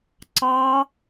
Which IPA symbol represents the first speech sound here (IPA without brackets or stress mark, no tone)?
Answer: ǀ